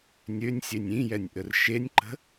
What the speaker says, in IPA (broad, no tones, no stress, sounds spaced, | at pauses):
nʲ ø nʲ sʲ e nʲ ĩ j ɛ nʲ ʔ ə r ʃ e nʲ ǃ ə̤